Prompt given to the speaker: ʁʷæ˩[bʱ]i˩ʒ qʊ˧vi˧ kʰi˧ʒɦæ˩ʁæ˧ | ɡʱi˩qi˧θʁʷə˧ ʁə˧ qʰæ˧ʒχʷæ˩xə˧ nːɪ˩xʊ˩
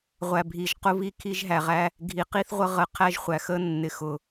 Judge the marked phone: correct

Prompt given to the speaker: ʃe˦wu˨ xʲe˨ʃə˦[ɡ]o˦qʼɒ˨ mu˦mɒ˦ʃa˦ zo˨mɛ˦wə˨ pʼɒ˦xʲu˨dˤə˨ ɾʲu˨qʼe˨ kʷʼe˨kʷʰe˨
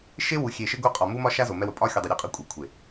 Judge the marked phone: correct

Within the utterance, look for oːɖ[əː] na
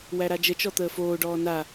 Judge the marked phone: incorrect: ɔː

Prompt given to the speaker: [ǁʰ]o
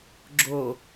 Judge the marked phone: incorrect: ɡ͡ǁ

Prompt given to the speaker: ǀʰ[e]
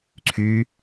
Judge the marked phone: incorrect: y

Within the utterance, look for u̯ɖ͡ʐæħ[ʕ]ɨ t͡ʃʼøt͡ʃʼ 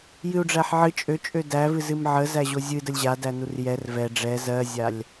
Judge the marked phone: correct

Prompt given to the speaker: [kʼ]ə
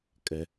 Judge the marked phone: correct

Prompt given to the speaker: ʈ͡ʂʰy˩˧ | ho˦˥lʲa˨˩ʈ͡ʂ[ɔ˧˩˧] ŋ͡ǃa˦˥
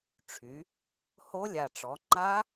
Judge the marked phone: incorrect: ɔ˩˧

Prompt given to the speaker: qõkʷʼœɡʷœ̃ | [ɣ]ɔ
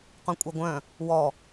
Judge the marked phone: incorrect: w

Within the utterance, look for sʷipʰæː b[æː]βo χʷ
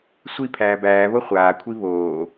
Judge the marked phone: correct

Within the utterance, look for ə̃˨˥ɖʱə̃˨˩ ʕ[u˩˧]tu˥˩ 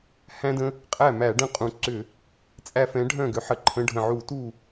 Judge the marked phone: incorrect: u˧˩˧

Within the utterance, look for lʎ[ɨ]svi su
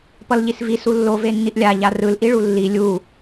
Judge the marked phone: incorrect: i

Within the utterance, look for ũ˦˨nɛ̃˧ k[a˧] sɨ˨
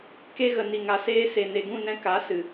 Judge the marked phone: incorrect: a˨˦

